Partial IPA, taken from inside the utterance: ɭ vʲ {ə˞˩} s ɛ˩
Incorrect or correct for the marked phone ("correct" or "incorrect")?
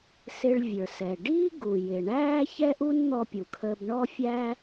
correct